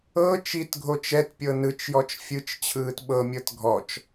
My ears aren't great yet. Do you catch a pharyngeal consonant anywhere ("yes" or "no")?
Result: no